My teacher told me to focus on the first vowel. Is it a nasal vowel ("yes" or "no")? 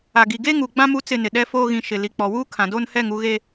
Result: no